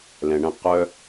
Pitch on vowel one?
low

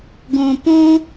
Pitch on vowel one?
low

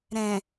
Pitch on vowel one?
low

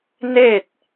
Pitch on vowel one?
falling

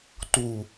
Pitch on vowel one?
low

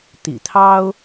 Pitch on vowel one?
low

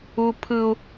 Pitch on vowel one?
high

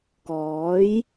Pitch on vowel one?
rising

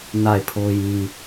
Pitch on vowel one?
falling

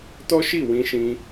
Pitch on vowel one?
high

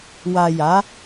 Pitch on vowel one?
low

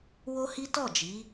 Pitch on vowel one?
high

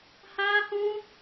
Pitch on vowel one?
high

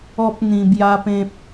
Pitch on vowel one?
high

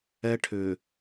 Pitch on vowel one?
high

